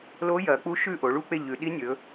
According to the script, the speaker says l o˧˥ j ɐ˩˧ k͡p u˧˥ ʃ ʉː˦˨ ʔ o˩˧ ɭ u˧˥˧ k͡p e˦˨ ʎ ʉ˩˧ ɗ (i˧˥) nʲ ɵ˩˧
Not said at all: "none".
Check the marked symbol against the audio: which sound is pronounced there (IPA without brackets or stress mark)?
i˧˥